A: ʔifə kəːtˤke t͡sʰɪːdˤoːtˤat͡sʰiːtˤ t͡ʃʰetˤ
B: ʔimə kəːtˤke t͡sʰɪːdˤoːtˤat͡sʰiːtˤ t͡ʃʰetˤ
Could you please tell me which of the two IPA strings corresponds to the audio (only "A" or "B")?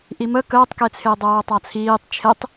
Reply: B